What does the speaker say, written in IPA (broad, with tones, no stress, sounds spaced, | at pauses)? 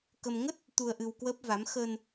k ə˧ m ŋ ə˦˥ t̚ | t̪ u˧ ə̯ ʔ ɨ˧ w k w əː˦˥ p̚ v a˨˦ m x əː˧ n